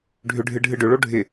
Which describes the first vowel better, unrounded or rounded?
rounded